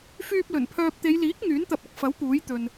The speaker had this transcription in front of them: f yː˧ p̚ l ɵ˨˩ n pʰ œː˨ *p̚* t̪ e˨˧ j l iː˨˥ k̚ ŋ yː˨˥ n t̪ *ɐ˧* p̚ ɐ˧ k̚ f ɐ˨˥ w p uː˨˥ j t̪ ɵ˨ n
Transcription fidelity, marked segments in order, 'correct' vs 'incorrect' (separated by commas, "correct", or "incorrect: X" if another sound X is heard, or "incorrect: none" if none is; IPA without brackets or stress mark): correct, correct